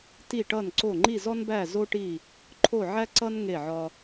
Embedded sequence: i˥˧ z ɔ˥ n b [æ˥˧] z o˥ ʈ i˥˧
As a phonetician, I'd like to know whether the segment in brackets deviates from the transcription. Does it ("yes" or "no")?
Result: no